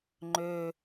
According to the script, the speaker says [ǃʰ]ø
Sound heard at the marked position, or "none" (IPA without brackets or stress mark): ŋ͡ǃ